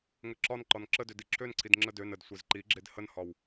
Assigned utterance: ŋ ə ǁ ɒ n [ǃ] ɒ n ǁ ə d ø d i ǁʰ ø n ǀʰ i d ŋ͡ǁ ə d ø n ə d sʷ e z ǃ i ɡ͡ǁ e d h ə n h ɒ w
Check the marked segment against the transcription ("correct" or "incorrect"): correct